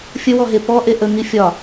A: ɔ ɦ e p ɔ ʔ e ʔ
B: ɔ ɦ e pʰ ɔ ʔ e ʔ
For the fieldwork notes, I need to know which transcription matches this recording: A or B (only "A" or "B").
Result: A